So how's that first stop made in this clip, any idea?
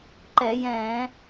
click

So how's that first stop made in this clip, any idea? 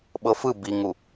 implosive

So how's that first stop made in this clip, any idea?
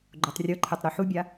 click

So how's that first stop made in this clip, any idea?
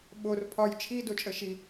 implosive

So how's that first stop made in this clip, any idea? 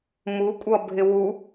ejective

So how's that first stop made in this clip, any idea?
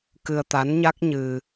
plain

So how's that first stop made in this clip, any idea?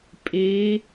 ejective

